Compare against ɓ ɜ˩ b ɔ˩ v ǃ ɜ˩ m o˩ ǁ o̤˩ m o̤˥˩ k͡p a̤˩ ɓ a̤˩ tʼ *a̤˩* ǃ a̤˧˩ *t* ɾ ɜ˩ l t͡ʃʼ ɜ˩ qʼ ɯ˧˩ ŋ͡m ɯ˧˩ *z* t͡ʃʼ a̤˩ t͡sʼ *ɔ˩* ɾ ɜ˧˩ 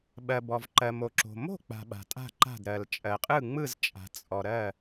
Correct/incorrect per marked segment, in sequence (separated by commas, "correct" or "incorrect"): incorrect, incorrect, correct, correct